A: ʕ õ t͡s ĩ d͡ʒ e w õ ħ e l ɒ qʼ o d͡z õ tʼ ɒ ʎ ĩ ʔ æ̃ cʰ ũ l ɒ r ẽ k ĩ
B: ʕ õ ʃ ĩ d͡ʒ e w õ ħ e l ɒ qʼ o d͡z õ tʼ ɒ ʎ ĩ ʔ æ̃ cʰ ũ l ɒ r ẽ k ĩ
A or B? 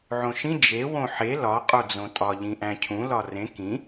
B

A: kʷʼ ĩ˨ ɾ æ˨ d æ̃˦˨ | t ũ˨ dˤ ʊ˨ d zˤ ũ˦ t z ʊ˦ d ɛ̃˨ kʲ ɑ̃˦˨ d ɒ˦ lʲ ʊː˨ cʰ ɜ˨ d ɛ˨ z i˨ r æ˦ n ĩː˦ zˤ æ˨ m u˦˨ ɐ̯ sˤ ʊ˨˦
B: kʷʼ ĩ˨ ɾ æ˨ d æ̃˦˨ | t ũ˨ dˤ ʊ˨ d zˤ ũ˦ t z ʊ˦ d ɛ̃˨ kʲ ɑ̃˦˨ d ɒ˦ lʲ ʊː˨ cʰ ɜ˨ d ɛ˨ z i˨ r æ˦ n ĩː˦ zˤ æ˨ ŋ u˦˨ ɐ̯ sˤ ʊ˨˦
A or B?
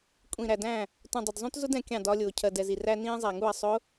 B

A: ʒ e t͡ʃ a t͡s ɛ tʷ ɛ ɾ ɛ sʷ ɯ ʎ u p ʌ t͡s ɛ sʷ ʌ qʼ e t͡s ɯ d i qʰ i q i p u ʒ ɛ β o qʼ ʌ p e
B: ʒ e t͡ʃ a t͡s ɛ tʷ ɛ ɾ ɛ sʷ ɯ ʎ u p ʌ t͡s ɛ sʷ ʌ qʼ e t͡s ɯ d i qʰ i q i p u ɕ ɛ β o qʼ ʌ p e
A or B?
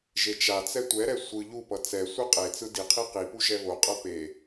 A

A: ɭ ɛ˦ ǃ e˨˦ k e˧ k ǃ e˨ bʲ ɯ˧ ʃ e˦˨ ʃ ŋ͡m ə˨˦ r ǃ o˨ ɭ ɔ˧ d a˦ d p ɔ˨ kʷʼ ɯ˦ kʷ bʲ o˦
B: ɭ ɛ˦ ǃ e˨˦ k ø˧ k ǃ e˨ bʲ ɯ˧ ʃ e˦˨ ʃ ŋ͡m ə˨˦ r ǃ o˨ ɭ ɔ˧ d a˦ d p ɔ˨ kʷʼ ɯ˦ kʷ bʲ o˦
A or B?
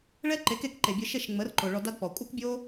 A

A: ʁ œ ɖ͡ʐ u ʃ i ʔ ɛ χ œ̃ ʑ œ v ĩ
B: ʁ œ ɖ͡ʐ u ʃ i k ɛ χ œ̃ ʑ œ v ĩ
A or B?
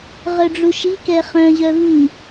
B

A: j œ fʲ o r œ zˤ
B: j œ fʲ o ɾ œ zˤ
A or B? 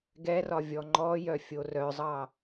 A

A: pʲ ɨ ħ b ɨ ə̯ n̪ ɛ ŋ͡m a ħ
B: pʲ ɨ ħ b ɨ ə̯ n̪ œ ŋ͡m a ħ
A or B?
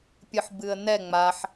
A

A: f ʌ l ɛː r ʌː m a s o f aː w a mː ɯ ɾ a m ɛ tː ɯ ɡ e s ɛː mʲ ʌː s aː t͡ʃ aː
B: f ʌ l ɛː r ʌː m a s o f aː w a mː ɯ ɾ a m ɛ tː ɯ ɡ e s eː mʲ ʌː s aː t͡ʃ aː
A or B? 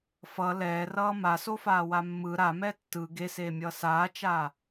B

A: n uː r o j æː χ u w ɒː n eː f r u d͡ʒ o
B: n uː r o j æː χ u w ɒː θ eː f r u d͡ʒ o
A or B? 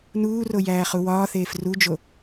B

